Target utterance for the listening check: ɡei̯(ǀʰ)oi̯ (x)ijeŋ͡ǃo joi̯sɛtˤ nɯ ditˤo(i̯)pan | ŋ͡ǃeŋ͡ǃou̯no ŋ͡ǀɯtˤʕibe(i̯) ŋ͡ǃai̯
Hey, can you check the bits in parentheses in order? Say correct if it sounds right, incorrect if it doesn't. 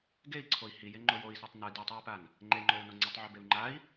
correct, incorrect: h, correct, incorrect: u̯

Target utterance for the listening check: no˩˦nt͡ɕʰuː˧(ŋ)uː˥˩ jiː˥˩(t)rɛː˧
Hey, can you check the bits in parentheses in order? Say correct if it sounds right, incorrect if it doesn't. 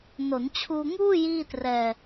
correct, correct

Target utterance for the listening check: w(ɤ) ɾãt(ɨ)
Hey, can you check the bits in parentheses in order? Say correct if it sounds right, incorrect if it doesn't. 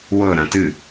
correct, correct

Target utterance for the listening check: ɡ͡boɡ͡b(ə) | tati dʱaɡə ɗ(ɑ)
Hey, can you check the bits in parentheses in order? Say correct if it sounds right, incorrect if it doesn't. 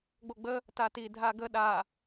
correct, incorrect: a

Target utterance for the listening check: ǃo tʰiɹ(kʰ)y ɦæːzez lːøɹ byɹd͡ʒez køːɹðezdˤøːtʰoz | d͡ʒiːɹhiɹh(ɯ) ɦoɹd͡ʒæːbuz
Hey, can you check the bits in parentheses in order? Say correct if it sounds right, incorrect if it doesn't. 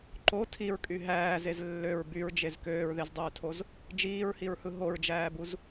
incorrect: kʼ, correct

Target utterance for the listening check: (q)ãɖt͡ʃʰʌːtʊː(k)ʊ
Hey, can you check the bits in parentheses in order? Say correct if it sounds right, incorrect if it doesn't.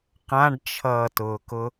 correct, correct

